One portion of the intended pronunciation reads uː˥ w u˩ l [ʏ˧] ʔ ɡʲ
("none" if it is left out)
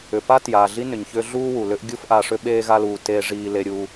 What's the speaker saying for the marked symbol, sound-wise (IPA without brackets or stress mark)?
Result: ʏ˥